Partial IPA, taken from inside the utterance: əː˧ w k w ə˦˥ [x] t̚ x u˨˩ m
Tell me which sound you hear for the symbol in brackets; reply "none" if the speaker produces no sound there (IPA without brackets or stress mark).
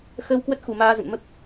none